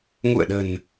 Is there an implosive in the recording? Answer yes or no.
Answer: yes